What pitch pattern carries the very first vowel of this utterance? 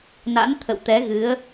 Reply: rising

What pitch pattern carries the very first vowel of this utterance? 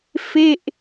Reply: falling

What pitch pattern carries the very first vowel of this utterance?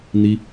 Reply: high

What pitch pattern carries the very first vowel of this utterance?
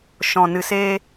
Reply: low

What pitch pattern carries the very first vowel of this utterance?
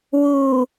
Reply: low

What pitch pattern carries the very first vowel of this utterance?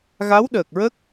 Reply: rising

